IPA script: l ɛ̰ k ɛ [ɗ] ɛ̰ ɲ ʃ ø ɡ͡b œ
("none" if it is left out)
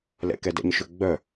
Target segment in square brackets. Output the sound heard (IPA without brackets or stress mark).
d